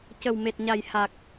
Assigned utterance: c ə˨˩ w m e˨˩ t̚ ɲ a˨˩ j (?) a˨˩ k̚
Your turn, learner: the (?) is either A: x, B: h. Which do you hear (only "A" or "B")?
B